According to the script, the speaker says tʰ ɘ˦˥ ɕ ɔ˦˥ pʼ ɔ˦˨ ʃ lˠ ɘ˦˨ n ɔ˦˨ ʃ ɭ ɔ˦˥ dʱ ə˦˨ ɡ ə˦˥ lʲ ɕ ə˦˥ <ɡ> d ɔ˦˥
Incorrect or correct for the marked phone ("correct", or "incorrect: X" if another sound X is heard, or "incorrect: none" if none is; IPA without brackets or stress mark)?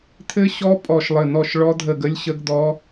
correct